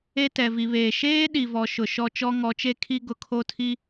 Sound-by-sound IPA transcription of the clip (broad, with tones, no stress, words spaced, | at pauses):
e˦ tɛ˨vi˨βeː˨ ʃeː˦ ɗi˨vɔ˨ ʃʊ˨ʃɔ˦ t͡ʃɔ˦ŋɔ˨˦t͡ʃe˦kʰi˦ ɡʊ˨kʰo˦tʰi˦